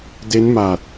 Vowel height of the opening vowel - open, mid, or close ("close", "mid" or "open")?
mid